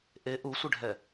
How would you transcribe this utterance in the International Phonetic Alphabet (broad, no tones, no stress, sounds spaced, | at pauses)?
ʔ e ʔ u sʷ ɪ ɖʱ ɛ